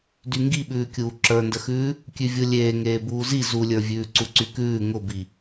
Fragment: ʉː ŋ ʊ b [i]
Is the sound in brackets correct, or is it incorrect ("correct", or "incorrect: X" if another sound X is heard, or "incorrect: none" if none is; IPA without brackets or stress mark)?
correct